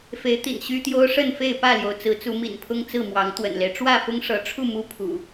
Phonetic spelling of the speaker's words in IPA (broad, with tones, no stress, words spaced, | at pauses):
fe˨˦ɪ̯t̪ḭ˨˩nɕy˦t̪jo˦ʊ̯ ʂə˥˨nfe˥˨ɪ̯ pä˥˨ljo˩ʊ̯ t͡sɹ̩˨˦t͡su˨˦ mḭ˨˩npʰʊ˦ŋ t͡sɹ̩˥˨mwɑ˨˦ŋ t̪wə̰˨˩nle˦ɪ̯ ʈ͡ʂwä˥˨fʊ˦ŋʂɤ˨˦ʈ͡ʂʰu˥˨ mu˦pʰṵ˨˩